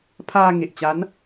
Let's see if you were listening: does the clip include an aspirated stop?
yes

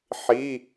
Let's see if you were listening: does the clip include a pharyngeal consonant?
yes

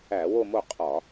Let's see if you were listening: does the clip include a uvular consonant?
yes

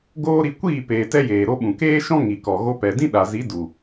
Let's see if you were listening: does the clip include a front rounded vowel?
no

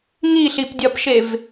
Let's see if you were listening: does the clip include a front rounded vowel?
no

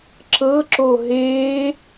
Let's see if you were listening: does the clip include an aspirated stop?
no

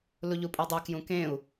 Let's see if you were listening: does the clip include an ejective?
yes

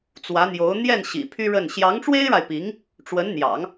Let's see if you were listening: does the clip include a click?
no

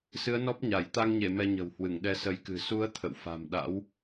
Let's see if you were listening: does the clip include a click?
no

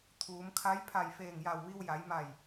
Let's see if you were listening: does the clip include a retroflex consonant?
no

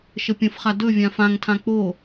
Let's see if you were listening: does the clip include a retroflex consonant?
no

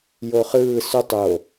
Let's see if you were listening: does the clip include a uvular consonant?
yes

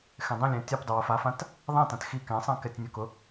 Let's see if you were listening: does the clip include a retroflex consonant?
no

